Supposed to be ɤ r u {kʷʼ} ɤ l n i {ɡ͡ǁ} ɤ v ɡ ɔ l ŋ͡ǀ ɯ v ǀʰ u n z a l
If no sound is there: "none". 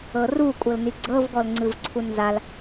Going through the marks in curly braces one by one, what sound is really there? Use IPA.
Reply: kʷʼ, ɡ͡ǀ

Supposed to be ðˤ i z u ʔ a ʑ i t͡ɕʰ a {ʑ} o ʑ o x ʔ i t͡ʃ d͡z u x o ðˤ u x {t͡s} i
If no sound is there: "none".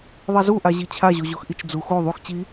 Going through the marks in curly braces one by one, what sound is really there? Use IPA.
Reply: ʑ, t͡ɕ

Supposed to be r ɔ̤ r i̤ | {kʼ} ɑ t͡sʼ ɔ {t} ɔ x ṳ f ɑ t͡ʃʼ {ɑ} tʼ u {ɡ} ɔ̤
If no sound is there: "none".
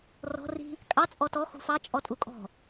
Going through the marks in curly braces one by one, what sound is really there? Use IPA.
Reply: kʼ, t, ɔ, kʼ

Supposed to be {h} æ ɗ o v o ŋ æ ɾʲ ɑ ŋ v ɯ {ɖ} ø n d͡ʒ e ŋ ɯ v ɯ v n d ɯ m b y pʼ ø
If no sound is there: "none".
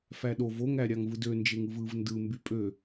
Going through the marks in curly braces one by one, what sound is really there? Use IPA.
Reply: f, d

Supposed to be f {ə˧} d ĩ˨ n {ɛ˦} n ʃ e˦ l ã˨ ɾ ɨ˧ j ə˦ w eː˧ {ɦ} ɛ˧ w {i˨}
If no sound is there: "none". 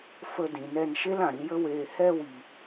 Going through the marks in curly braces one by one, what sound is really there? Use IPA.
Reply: ə˧, ɛ˧, h, i˨

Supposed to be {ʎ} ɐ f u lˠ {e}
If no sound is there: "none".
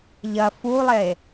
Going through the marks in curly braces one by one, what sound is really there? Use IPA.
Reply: ʎ, e

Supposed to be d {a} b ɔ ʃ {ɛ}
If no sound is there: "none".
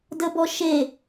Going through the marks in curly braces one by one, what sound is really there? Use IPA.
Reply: ə, e

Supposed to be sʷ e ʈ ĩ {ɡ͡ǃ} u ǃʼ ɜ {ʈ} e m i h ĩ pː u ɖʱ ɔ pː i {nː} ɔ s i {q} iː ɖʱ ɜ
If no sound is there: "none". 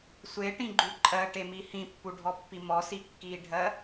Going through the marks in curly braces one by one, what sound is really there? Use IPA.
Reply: ɡ͡ǃ, ʈ, m, kː

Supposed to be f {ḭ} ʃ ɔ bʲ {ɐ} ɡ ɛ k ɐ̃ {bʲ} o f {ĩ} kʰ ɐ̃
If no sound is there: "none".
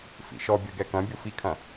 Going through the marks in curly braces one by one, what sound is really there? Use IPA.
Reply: ḭ, ɐ, bʲ, i

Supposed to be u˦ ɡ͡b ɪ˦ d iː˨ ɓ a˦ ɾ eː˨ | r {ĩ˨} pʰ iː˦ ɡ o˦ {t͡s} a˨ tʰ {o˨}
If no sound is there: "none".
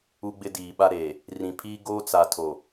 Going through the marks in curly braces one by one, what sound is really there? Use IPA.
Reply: ĩ˨, t͡s, o˨

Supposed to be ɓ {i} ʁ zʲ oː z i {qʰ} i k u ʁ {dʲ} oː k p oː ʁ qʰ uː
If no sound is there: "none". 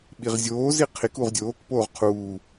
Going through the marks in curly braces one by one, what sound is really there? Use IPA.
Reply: i, qʰ, dʲ

